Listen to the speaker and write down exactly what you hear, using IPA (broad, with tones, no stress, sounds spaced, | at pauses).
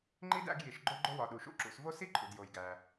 ŋ͡ǃ i˥ d æ̰˦ ɡ j i˩ ʃ ɡ͡ǃ o˦ ɡ͡ǃ o˦ w ɒ˩ ɗ u˩ ʃ ṵ˥ ǁ ṵ˨ s v o˥ s i˥ ǃʰ ṵ˩ d j o˩ j ɡ æ˩